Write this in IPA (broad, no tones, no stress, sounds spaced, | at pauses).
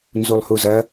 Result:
n z u lˠ h u z ɐ